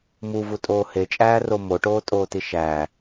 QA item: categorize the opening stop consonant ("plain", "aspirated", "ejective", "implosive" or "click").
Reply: ejective